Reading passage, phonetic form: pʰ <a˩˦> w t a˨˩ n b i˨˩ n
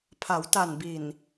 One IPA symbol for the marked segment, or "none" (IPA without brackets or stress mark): a˩˦